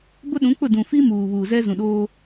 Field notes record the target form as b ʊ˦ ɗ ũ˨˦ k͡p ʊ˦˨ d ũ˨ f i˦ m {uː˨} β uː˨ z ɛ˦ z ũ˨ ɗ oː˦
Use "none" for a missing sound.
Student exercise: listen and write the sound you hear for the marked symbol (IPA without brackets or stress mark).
uː˨